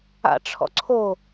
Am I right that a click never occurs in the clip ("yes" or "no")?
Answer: no